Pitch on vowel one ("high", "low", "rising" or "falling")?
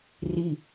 falling